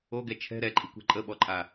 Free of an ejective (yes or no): no